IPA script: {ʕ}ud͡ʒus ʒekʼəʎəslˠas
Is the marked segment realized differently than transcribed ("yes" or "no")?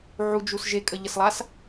no